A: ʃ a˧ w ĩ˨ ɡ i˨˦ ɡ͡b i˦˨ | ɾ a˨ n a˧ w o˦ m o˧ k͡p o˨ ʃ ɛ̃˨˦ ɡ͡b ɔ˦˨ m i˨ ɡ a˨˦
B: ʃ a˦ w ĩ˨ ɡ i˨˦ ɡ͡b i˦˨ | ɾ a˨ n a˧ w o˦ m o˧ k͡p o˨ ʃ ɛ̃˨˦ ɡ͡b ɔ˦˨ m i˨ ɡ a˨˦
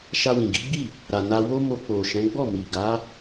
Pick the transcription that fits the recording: A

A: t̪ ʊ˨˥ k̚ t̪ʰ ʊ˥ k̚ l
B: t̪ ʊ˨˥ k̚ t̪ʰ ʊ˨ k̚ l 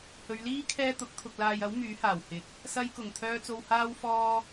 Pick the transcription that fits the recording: B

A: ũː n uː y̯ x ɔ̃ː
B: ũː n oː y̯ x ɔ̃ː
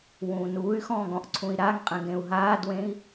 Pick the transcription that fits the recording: A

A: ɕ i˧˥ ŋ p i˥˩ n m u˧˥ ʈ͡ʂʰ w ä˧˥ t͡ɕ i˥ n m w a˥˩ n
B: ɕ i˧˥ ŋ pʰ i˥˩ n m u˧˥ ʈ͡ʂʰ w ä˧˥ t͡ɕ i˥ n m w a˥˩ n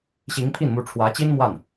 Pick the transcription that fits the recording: B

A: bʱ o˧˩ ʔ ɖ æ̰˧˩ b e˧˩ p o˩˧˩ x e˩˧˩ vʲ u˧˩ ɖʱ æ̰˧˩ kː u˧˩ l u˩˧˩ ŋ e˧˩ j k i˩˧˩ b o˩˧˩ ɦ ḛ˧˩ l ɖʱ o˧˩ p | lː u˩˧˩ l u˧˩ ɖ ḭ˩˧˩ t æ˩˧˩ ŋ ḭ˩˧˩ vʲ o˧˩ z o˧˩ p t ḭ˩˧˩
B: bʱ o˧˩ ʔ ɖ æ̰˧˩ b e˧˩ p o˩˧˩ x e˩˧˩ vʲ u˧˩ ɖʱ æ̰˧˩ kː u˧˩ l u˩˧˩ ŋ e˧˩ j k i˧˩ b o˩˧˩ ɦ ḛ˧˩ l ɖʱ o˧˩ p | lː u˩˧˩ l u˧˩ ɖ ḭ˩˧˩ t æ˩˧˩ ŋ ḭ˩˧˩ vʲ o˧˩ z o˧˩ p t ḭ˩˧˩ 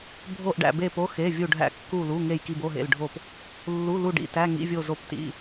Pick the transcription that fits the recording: B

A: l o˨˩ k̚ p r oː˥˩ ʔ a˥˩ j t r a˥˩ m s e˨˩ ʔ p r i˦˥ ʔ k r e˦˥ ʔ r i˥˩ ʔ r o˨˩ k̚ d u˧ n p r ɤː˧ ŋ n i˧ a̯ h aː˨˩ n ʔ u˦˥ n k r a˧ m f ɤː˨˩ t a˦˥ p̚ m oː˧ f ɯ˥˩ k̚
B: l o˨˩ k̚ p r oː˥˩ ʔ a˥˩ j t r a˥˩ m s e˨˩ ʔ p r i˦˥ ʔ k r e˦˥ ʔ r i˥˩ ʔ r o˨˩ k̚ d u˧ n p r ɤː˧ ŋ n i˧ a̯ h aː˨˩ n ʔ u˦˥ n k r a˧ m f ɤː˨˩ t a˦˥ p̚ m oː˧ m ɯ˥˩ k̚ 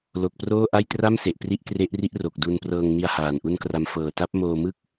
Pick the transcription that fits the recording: B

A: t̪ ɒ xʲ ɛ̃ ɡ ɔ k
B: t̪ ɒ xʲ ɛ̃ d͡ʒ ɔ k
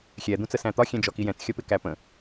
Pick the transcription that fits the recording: B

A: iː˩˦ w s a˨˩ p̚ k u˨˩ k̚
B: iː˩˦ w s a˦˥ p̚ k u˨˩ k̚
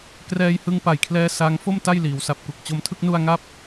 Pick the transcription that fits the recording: A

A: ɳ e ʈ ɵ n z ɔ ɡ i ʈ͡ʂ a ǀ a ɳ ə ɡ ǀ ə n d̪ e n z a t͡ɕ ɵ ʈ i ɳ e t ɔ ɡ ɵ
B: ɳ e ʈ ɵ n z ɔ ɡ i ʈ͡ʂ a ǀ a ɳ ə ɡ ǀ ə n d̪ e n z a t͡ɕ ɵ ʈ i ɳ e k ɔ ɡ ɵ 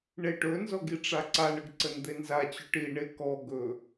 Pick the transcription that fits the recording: B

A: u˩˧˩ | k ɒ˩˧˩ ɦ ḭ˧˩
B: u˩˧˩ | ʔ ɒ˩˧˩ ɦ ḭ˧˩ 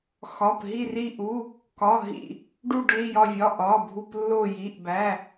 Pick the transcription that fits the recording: A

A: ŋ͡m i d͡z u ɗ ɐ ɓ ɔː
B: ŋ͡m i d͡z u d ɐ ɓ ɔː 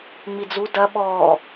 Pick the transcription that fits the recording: B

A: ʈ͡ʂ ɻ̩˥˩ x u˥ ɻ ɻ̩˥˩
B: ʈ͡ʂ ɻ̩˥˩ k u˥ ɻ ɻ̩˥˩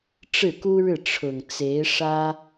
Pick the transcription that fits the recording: B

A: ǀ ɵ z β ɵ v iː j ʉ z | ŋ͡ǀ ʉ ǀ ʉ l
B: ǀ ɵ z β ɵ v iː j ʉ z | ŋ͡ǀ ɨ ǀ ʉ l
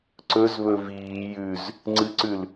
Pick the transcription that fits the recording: B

